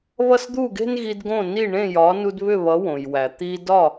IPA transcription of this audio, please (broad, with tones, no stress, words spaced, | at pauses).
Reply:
βʌ˥˩sd̪u˥˩ɡe̤˥nɣi˧d ɡõ˥˩ni˥˩ ɳẽ˥˩jɒ˩˥nu˧d βʏ˥˩βʌ˩˥ wõ˩jwæ˩ t̪i˧dɒ˥˩